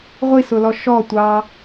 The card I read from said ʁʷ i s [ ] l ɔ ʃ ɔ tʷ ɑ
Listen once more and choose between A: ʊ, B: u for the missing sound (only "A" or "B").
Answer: A